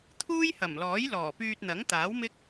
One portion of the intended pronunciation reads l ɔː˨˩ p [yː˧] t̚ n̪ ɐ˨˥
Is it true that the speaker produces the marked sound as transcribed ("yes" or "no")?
yes